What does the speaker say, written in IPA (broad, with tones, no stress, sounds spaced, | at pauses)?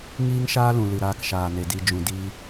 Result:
ŋ iː˦ ŋ ʃ aː˦ l ũ˨ l ɨ˨ ɾ aː˧ k ʃ aː˨ n e˨ d i˨ d͡ʒ ũ˨ d i˧